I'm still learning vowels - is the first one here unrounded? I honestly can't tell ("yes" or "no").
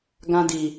yes